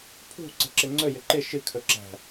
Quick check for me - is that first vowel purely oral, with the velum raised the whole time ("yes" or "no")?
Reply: yes